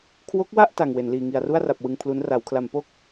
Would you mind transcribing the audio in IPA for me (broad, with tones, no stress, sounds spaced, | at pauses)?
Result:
kʰ w o˦˥ k̚ w a˥˩ ʔ t a˨˩ ŋ w e˩˦ n l iː˨˩ ŋ i˨˩ a̯ r u˥˩ a̯ r a˨˩ p̚ w ɯ˧ ŋ pʰ l u˦˥ n r a˩˦ w kʰ l a˩˦ m p o˥˩ k̚